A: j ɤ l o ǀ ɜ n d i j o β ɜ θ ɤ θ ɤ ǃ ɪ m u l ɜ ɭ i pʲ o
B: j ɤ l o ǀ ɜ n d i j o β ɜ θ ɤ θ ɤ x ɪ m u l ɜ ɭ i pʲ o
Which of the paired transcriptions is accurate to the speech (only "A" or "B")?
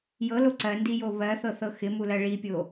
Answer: B